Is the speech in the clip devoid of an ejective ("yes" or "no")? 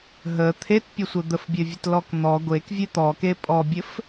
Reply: no